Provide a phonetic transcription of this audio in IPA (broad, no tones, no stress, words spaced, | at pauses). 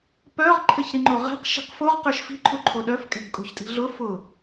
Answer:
pœʁ ǃʰɘçɾiŋ͡ǃoʁɛ̤q ʃi̤qfoʁ qə˞ʃfi̤ ǃʰuǃʰoɗœf kʼɛ̤ɡkʼo̤çtʼi̤ɮʊ fʊ